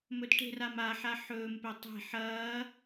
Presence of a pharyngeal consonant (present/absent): present